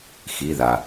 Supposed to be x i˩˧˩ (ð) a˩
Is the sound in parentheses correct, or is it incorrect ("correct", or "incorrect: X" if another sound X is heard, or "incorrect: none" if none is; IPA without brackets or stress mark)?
correct